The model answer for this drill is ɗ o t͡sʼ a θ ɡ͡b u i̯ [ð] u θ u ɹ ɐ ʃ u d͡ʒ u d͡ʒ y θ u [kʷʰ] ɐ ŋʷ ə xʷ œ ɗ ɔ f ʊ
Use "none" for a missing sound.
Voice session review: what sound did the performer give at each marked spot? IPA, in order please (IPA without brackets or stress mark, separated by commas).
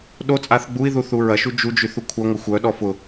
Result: ð, kʷʰ